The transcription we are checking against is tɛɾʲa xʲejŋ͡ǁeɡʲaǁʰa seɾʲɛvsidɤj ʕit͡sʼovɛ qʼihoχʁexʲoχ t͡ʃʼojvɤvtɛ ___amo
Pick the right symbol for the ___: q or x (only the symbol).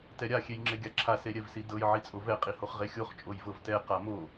q